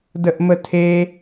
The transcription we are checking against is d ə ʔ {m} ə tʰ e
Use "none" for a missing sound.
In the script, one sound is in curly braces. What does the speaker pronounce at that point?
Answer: m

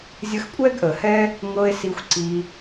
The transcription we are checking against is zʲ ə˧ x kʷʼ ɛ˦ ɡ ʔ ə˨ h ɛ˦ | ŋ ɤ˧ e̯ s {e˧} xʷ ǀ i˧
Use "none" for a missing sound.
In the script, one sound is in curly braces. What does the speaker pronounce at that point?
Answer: i˧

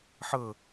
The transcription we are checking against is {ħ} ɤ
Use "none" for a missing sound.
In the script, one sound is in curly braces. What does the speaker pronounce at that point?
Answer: ħ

